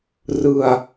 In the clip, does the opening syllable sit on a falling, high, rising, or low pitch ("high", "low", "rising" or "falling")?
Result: low